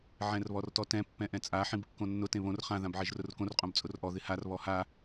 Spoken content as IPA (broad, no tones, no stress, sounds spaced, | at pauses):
ʕ ɛ̃ r β ɔ r t ɔ t ɛ̃ pː ɛ̃ ʔ ɛ̃ t͡sʼ a ħ ĩ b kː õ nː ʊ t ẽ β õ r χ ã ð ã b ʕ e ʒ r ʊ r k õ r qʼ õ b t͡sʼ ʊ r ʔ ɔ ð ɪ h a r β ɔ h a